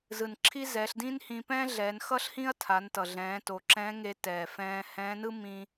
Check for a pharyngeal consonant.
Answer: absent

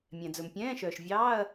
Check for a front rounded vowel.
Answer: present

